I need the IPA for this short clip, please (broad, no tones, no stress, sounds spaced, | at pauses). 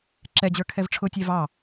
ǁ ɛ d͡ʑ ə˞ kʰ ɛ v ʈ͡ʂʰ ʊ tʲ ɛ v ɑ